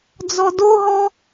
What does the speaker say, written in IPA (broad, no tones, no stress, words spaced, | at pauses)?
d͡zɔdoɦɔ